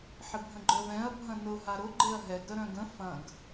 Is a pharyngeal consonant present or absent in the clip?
present